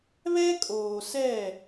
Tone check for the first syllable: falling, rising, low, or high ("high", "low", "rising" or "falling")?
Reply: high